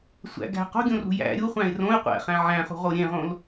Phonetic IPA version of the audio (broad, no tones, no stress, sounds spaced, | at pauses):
sʷ æ̰ ɡ æ̤ q o̤ ɡʲ õ r ṳ j æ̰ ɾʲ u χʷ æ̃ ɪ̯ r õ ɪ̯ qʷ æ̰ χ æ̃ ʕ æ̃ χ ṳ ʁ o ɾʲ ẽ ʁ õ l